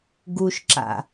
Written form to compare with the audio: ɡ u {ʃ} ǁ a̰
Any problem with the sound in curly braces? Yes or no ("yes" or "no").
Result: no